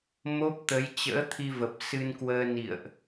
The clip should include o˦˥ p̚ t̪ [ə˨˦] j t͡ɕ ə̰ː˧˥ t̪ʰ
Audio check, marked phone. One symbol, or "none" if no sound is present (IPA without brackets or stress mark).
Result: ə˨˦